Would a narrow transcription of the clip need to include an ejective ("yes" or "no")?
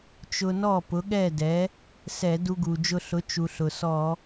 no